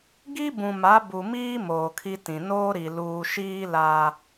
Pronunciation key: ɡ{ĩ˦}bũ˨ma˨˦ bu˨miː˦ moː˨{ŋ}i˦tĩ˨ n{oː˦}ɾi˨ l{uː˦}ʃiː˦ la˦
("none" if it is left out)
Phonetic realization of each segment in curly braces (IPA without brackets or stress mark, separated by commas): i˦, kʰ, oː˦, uː˨